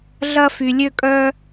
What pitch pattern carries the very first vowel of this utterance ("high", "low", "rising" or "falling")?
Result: high